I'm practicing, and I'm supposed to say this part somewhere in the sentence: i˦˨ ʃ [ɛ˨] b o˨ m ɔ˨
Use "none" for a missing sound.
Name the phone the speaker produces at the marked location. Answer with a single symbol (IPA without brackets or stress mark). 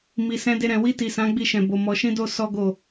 ɛ̃˨